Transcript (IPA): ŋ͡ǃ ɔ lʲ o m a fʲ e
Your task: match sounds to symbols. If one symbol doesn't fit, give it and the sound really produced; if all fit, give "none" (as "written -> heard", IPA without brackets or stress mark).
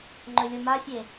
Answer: ɔ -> ɵ